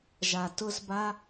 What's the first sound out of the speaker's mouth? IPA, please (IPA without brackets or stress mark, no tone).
ʒ